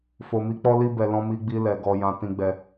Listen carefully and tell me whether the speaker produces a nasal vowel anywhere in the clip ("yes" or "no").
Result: yes